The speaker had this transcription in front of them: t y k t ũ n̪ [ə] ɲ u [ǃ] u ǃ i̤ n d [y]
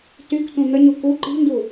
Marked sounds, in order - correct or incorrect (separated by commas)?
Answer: correct, incorrect, incorrect